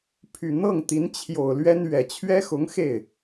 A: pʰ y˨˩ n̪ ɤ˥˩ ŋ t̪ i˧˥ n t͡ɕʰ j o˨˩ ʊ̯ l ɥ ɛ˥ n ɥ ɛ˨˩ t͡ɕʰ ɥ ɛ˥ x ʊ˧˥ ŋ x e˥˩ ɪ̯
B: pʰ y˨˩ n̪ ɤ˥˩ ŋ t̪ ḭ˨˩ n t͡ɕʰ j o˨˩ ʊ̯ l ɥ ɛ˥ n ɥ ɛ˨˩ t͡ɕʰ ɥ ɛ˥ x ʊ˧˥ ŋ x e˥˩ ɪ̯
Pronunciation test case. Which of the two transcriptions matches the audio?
A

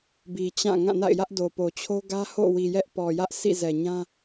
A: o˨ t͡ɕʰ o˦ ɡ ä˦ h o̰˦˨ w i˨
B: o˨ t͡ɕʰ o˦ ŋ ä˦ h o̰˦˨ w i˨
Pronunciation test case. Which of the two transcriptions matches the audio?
A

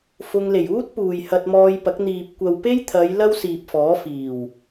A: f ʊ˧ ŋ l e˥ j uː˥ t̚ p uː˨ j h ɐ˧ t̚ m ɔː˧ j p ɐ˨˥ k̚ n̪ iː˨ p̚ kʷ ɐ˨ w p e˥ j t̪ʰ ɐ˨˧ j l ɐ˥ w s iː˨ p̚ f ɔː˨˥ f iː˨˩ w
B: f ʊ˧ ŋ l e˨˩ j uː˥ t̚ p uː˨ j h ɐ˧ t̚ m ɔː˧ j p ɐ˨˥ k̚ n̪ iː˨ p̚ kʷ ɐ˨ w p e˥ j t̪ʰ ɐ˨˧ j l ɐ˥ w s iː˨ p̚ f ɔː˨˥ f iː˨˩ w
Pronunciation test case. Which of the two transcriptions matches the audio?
B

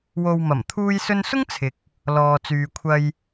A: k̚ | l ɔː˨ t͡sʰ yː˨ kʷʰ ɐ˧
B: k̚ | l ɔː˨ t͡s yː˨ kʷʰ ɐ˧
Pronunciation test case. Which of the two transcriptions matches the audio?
B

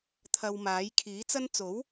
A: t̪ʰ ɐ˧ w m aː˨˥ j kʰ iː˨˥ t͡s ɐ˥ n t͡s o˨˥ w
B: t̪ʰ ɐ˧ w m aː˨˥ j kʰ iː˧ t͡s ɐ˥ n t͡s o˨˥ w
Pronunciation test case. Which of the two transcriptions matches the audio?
A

